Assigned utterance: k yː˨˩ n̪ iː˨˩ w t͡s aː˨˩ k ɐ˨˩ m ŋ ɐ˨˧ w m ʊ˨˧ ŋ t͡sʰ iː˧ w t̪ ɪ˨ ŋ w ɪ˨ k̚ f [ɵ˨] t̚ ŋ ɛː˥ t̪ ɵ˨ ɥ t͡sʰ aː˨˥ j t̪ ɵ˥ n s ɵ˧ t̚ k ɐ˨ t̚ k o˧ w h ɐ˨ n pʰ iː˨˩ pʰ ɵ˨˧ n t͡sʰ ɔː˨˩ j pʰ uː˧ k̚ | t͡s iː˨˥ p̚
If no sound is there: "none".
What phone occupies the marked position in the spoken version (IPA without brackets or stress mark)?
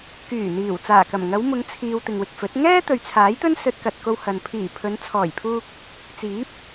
ɵ˨˥